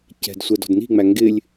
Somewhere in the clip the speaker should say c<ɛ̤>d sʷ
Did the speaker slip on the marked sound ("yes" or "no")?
no